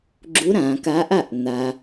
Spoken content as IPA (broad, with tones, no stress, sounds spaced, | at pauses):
ɡ͡ǁ u˧˥ ɾ ã˩˧ k a˧˥ ʔ a˥˨ ʔ n̪ a˧